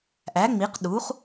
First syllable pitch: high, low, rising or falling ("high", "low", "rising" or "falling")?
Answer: rising